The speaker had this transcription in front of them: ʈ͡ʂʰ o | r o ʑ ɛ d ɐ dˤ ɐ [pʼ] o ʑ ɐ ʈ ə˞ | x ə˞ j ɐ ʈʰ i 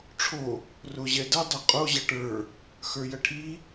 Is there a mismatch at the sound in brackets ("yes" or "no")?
yes